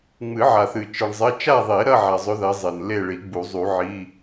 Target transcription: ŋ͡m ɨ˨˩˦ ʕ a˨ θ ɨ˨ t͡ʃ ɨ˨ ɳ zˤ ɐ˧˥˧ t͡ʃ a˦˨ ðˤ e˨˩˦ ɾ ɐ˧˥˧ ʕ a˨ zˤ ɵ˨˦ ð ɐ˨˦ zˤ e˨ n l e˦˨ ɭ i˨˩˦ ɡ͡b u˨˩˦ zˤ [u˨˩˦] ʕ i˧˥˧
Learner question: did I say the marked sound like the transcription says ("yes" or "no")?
yes